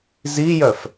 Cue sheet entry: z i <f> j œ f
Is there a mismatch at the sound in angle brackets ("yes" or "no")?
yes